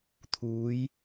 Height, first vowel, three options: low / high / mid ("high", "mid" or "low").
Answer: high